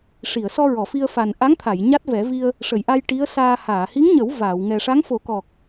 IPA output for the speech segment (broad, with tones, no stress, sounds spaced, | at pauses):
ʂ i˨˩˨ ə̯ s ɔ˧ ɹ ɔ˨˩˨ f i˧ ə̯ f a˨˩ n ʔ a˧˥ ŋ t̪ʰ a˨˩˨ j ɲ a˦˥ t̚ v ɛ˨˩˦ v i˧ ə̯ | ʂ ə˨˩˨ j ʔ a˧ j ʈ i˧˥ ə̯ s aː˧ h aː˨˩˨ h i˧˥ ŋ ɲ ə˨˩˦ w v aː˨˩˨ w ŋ ɛ˨˩ ʂ a˧˥ ŋ f o˨˩˦ k ɔ˨˩ k̚